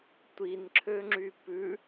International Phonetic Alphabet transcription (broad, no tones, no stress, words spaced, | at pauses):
tʷinǁʰøŋ͡ǁy pʉ